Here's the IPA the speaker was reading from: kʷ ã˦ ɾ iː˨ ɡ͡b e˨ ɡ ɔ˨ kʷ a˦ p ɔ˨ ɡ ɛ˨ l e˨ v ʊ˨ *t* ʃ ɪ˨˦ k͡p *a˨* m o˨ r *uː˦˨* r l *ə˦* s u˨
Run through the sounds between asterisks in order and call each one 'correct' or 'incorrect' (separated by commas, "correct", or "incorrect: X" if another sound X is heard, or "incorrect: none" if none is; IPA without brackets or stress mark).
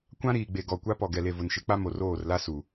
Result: incorrect: n, incorrect: a˦, incorrect: oː˦˨, incorrect: a˦